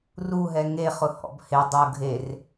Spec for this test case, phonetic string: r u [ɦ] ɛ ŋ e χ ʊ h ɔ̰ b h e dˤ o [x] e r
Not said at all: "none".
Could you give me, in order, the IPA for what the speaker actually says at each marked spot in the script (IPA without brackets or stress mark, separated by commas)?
ɦ, ɡʱ